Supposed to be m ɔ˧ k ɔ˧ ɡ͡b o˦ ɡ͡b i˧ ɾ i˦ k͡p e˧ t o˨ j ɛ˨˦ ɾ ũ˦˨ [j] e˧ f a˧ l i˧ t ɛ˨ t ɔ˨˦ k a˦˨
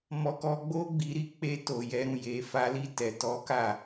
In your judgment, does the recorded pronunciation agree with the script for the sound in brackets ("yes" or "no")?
yes